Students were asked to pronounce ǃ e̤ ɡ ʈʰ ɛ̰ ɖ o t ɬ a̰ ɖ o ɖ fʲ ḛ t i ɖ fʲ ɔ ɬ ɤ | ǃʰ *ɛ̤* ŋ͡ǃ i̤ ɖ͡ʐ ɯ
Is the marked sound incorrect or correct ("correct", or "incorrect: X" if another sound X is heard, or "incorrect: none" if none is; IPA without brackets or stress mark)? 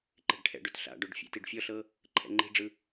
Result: incorrect: ɛ̰